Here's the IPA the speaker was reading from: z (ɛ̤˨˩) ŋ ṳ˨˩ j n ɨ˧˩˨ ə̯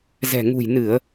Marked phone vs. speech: correct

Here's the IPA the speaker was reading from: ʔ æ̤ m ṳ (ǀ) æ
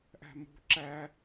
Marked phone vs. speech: incorrect: ǁ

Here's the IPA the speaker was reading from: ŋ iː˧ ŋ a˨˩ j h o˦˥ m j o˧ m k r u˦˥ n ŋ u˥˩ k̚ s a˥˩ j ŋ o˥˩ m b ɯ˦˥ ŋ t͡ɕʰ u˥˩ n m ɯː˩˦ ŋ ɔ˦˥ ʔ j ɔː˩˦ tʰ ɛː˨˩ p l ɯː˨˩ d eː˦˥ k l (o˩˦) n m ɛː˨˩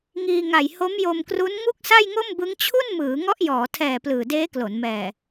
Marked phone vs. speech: correct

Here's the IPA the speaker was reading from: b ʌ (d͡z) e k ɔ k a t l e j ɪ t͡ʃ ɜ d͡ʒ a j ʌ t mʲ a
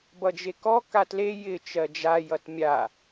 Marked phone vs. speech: incorrect: d͡ʒ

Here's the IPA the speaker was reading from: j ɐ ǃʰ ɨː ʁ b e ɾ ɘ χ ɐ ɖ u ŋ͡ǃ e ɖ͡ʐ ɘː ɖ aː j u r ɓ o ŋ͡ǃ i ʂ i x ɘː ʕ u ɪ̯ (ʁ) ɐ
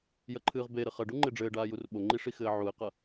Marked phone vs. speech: incorrect: q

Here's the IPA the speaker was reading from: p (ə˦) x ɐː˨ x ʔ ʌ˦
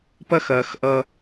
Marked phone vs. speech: incorrect: ɐ˦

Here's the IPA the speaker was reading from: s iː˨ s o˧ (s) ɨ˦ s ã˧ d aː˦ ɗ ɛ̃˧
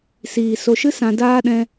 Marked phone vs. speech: incorrect: ʃ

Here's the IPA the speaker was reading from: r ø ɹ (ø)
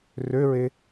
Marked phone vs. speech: incorrect: e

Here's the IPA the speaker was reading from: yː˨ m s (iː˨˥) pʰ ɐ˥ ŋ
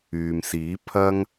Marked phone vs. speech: correct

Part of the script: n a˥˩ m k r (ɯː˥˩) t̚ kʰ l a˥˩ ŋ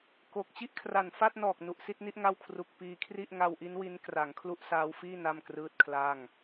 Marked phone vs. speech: correct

